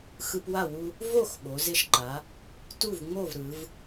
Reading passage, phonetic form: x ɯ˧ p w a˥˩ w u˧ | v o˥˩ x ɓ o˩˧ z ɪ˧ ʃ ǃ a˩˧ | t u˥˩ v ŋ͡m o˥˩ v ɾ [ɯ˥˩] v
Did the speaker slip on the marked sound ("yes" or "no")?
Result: yes